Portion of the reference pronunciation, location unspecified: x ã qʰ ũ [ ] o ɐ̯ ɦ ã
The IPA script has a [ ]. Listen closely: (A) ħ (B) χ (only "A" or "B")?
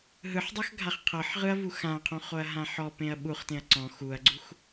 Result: B